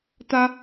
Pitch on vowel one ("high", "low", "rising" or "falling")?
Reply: high